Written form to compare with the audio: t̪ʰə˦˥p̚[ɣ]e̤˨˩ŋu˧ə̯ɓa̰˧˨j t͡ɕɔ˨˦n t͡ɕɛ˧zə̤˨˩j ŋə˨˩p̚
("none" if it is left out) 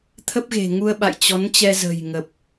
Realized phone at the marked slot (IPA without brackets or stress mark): ɣ